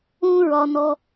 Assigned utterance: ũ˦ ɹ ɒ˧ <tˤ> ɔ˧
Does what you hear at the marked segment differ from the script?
yes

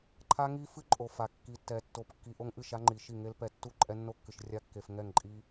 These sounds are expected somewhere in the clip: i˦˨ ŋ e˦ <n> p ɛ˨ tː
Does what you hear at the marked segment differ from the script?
yes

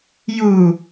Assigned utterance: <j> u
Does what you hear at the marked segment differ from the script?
no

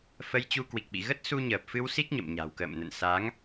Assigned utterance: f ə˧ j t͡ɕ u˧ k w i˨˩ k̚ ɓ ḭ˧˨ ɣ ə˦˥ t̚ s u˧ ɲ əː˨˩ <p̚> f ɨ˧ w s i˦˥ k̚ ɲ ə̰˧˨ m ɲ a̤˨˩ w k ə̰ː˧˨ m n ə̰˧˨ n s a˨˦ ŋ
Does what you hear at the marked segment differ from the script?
no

